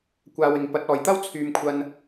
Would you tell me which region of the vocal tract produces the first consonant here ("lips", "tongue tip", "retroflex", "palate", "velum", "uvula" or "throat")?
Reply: velum